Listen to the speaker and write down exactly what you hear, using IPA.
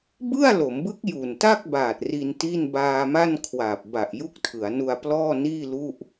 b ɯ˥˩ a̯ l o˩˦ m b ɯ˦˥ k̚ j u˨˩ n t a˥˩ k̚ b aː˨˩ t̚ r i˧ n t i˥˩ n b aː˧ m a˥˩ n kʰ w aː˨˩ p̚ b a˨˩ ʔ j u˦˥ k̚ tʰ ɯ˩˦ a̯ n u˧ a̯ p l ɔː˥˩ n iː˥˩ l u˥˩ ʔ

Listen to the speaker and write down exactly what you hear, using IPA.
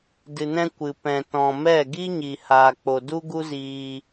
d ɨ˨ n ɛ̃˧ kʷ ɨ˨ p ɛ̃˨ t ɔ̃˨ m ɛ˦˨ ɡ i˦ ɲ i˨ h aː˨ k͡p o˨ d u˦ ɡ u˦ z iː˧

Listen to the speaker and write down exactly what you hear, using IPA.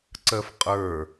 ǀ ɜ f qʼ ə˞

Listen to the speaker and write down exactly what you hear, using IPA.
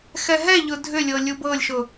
x ɛ ɦ ɛ ʎ ʊ dʱ ʏ lʲ ɤ lʲ u b ɤ lʲ ʃ ʊ

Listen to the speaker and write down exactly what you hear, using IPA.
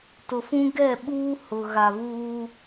t ʊ˨ f ũ˦ ɡ ɛ˦˨ ɓ uː˦ h ʊ˨ ɣ a˨ β uː˦

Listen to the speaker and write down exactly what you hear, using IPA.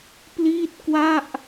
p l iː˥˩ t̚ k w a˥˩ ʔ

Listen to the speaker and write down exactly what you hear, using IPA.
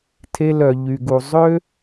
tʰ e˧ l œ˩ ʎ y˩ ɡ u˩ zˤ ø˥

